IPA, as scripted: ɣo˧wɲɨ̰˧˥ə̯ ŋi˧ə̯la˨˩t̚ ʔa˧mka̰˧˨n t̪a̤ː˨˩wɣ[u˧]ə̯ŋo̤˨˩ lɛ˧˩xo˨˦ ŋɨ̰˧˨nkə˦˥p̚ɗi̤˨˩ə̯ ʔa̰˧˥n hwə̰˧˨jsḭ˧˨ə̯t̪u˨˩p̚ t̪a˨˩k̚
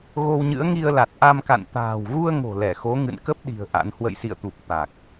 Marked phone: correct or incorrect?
correct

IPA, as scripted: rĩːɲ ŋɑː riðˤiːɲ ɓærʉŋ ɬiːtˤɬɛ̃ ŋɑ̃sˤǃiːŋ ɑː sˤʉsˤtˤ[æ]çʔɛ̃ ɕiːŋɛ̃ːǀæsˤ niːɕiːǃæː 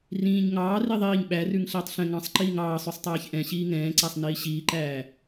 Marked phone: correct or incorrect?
incorrect: æː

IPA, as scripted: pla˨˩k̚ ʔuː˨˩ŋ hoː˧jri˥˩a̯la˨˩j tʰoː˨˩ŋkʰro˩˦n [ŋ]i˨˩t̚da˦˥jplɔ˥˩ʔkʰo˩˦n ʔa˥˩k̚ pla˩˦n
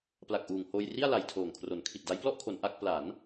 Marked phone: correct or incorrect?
incorrect: kʰ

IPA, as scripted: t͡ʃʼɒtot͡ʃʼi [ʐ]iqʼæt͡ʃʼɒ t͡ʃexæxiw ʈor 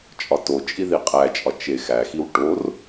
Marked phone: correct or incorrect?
incorrect: ð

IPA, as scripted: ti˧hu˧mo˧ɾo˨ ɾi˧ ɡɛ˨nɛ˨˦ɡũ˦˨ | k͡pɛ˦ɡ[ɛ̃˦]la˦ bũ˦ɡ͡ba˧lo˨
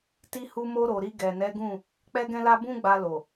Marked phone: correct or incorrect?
correct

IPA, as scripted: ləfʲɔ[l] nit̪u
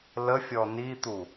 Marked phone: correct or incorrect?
incorrect: none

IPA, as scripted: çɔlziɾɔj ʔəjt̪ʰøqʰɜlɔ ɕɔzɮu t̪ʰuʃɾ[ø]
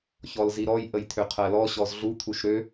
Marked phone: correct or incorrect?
correct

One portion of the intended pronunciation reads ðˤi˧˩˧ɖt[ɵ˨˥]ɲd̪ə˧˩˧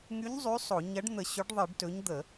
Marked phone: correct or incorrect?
correct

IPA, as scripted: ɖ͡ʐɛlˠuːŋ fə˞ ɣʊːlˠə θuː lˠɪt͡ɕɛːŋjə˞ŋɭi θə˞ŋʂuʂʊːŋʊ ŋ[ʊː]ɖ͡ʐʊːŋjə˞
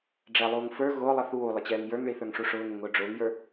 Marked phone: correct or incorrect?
correct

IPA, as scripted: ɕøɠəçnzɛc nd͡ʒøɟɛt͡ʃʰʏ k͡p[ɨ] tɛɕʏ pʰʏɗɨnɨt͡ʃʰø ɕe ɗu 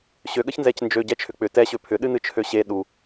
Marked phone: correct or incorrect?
incorrect: ʏ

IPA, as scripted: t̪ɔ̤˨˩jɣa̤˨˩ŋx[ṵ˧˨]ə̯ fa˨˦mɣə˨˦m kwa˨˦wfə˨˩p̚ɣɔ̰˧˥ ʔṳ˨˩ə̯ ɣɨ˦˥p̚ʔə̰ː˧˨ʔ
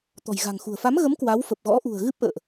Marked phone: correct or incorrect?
incorrect: ṳ˨˩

